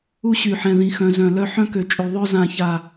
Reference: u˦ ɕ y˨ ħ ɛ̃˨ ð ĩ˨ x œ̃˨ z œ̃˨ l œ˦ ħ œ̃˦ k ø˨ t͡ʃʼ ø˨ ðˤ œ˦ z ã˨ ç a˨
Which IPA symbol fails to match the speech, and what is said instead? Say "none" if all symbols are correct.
none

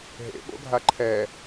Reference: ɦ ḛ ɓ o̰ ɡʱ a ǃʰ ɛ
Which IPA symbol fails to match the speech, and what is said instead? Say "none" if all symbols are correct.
none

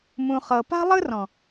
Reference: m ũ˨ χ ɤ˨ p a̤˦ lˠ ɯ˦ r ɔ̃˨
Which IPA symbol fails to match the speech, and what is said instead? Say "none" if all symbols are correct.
none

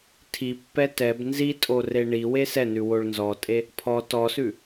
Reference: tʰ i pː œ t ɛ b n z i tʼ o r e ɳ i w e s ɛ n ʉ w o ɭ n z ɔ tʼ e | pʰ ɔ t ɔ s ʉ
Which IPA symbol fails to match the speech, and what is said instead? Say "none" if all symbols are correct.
œ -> ɛ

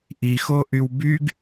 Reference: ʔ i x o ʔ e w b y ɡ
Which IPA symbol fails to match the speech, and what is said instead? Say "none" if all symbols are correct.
e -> y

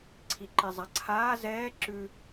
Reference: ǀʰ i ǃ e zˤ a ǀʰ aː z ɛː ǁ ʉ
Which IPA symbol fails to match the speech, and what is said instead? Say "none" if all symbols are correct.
none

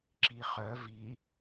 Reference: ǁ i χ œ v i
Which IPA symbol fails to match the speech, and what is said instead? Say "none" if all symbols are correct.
none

